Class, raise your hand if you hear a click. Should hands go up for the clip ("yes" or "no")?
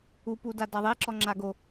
yes